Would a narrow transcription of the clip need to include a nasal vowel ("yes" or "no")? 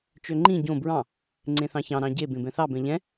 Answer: yes